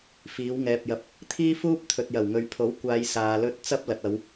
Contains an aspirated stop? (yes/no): yes